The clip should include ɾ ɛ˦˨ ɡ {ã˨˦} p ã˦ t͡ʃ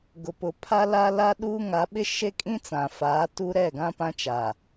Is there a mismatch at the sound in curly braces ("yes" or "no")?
yes